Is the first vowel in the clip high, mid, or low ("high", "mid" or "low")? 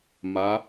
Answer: low